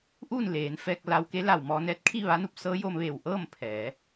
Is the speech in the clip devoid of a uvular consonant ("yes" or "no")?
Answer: yes